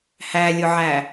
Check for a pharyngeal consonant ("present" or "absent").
present